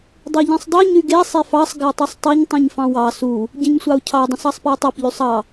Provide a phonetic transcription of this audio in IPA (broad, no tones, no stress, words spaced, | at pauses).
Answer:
dˤeʎĩsˤdˤy ɲyɡe sˤefɑsˤ ɡætˤusˤtˤiɲ tˤĩɲfɑ̃wɑ su | ɟĩɲsʷɑu̯cʰɑ dˤũsɑsˤpiu̯tˤæp ʎysˤɑ